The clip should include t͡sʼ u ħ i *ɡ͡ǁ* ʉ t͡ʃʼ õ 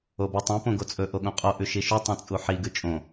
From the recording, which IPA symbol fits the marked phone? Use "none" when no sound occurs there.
ɡ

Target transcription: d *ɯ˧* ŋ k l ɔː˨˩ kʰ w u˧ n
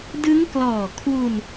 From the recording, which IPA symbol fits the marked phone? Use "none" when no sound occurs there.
ɯ˦˥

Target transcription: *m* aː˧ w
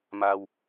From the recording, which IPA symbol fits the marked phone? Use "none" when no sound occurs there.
m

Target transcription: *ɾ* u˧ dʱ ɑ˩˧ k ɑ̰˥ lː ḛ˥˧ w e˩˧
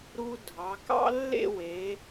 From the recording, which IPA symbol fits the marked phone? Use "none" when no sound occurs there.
ɾ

